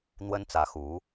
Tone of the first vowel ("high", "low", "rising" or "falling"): high